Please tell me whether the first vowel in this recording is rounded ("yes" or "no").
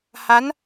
no